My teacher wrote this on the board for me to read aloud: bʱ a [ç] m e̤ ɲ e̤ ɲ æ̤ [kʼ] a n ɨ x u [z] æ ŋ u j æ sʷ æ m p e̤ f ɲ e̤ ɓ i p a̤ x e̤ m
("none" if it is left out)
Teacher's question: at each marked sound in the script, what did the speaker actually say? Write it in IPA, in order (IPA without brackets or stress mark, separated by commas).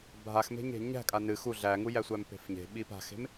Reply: x, kʼ, ɮ